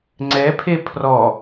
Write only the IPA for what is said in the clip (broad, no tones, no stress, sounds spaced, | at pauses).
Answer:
ŋ͡ǀ ɛ pʰ e pʰ r ɔ